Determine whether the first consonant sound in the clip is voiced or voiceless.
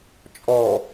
voiceless